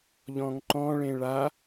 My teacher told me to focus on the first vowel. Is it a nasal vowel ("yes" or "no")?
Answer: yes